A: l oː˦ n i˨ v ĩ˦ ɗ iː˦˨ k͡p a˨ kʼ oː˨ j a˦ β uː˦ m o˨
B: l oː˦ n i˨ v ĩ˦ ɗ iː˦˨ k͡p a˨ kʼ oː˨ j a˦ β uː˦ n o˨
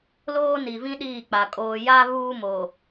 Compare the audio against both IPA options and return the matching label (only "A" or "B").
A